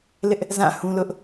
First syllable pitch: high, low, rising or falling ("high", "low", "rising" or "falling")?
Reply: high